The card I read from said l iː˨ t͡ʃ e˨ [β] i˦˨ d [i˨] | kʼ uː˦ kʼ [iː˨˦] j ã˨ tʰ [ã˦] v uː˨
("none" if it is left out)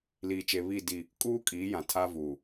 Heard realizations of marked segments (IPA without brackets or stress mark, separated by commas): β, i˦˨, iː˨˦, a˦